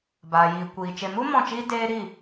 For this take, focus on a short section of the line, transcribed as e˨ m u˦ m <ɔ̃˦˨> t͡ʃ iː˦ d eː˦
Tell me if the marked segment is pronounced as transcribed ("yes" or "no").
yes